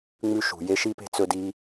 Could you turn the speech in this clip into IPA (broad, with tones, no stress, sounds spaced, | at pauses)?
ŋ͡m ʉ˦ ʃ ṳ˨ j e˦ ʃ i˦ p e̤˦ t͡s ɵ˧ d i˧